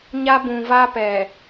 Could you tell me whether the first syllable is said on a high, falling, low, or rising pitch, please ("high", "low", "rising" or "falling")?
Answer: high